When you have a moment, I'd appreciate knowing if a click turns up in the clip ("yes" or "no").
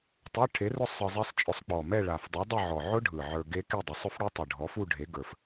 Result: no